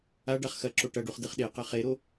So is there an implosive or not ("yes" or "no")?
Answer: yes